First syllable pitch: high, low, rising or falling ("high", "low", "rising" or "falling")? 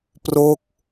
falling